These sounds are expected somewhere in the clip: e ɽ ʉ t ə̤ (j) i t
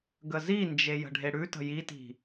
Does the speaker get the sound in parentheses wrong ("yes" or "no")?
no